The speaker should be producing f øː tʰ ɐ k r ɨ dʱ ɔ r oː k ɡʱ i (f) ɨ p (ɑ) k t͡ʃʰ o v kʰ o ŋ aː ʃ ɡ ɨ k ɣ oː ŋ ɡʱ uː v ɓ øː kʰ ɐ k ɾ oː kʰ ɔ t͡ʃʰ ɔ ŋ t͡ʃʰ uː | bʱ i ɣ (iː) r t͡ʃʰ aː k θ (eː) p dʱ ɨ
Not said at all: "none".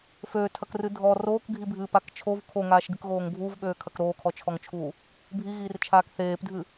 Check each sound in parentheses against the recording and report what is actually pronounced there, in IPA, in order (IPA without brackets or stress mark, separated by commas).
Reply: bʱ, a, iː, eː